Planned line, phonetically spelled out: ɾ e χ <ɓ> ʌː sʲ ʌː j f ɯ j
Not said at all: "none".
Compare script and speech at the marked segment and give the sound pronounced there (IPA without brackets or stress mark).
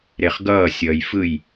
ɡ